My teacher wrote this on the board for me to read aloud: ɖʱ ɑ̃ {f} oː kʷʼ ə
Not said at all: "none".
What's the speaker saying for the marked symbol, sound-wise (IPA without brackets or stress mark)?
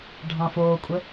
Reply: f